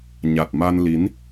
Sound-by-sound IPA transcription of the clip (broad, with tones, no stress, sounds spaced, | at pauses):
ɲ a˨˩ t̚ m a˧ n l i˨˦ n